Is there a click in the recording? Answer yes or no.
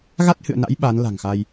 no